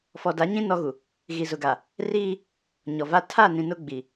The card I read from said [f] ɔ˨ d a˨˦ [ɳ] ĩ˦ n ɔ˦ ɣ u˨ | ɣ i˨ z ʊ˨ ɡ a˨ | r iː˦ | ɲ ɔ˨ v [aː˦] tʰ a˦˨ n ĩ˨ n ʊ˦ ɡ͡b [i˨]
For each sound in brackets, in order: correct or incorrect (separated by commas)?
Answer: correct, incorrect, incorrect, correct